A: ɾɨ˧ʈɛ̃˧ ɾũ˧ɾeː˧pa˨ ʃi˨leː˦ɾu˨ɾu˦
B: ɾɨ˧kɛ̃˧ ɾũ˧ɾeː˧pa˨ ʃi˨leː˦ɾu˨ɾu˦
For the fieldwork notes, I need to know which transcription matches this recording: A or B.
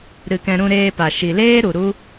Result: B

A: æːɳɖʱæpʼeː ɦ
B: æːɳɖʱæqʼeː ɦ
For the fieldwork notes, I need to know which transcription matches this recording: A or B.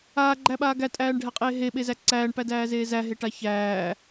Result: B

